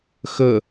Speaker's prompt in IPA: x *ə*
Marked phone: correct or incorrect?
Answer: correct